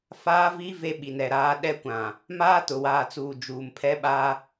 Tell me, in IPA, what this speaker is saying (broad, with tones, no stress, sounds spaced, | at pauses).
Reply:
f aː˦ v i˦ v e˦ ɓ i˨ n ɛ˨ ɾ aː˦ ɗ ɛ˦ kʷ ã˨ | m aː˦ t ʊ˨ w aː˨ t͡s uː˨ d͡ʒ uː˨ m pʰ ɛ˦ ɓ a˦